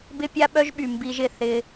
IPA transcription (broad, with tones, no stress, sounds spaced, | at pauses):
b ɪ˦ pʲ a˦ ɓ œ˦ ʒ ɓ y˨ m b i˦ ʒ ɪ˦˨ θ ɪ˦